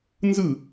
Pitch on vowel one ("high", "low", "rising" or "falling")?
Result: falling